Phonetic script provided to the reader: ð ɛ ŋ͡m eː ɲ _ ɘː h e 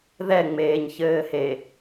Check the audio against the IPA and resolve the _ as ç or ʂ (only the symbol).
ç